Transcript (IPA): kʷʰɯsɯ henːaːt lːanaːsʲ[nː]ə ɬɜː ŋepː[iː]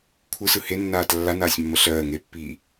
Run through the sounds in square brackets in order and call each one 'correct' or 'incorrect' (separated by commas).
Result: incorrect, correct